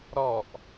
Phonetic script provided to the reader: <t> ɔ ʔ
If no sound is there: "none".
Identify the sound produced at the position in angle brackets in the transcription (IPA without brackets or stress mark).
ɾ